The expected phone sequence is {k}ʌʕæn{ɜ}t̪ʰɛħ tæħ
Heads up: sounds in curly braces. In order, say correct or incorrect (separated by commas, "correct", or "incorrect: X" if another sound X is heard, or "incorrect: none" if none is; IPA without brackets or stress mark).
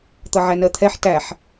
incorrect: t̪, correct